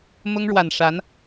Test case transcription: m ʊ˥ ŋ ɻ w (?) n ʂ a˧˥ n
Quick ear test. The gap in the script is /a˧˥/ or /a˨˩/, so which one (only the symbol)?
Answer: a˨˩